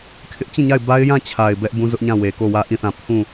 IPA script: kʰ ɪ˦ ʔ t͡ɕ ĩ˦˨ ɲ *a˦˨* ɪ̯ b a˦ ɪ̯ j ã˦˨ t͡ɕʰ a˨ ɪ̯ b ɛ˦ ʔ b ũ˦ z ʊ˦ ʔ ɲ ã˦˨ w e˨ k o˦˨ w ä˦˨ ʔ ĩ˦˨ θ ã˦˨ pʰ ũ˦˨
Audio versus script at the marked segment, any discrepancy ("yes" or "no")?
no